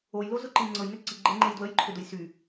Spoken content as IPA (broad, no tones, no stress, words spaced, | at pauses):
ojlozʊǃi ŋ͡ǀɤjnʏ ǀiɡ͡ǃeŋ͡ǃej dwəjǃʰʏdʊj sy